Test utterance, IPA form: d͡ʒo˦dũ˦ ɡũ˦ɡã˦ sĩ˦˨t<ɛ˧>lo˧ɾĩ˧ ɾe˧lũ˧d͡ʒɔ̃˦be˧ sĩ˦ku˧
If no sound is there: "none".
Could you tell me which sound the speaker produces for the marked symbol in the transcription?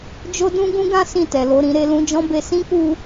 ɛ˨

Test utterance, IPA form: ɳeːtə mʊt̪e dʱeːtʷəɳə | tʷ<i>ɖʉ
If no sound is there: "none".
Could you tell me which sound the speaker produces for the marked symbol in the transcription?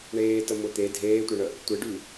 e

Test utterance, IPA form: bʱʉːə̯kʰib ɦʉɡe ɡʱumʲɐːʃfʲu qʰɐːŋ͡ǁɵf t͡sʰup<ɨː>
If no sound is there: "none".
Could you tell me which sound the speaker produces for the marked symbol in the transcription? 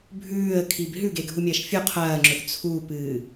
ɨː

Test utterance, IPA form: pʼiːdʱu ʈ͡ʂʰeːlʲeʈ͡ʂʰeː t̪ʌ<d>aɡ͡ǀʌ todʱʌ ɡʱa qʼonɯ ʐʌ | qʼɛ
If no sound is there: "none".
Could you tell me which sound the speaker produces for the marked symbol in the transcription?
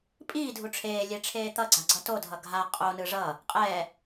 ɡ͡ǀ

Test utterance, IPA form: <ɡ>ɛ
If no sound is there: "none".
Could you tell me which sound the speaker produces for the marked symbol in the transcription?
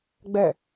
ɡ͡b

